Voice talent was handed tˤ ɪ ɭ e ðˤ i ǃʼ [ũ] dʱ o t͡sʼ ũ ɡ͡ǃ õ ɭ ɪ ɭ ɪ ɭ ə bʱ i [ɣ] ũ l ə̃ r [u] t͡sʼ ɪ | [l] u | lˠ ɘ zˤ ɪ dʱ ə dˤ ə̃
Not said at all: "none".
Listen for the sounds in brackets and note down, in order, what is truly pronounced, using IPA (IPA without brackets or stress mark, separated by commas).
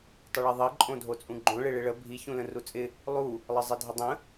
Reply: õ, ç, u, lˠ